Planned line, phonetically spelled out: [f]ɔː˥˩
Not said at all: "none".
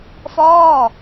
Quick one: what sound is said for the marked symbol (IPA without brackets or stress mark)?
f